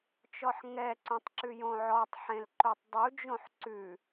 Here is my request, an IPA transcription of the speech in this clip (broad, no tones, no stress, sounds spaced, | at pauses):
t͡ʃ ɔ ħ ŋ ɛ ǀ õ tˤ ǁ ʉ j õ ʕ ɔ tˤ ħ ẽ l ǃ o tˤ dˤ u d͡ʒ õ ħ ǀ ʉ